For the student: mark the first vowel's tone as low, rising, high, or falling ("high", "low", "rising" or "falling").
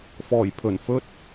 low